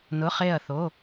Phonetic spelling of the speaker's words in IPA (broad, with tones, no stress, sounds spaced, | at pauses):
n ʊ˩˧˩ χ e˧˩ ɐ̯ θ o˩˧˩